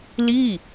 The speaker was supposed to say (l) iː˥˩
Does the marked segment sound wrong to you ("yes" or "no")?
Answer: no